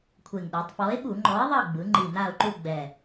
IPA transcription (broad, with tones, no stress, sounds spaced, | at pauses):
kʷʰ e˨˩ ŋ ɗ e˩˧ tˤ f ɔ˨˥ ɪ̯ ɓ u˧˩˧ ŋ͡ǃ ɔ˨˥ ɪ̯ ðˤ ɤ˦˨ ɡ͡b ɯ˩˧ ŋ͡ǃ i˨˩ n a˦˨ ʊ̯ ǃ u˦˨ ɡ͡b ɛ˨˩